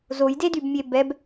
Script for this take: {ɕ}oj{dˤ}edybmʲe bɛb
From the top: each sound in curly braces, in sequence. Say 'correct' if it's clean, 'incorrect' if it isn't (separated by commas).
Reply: incorrect, incorrect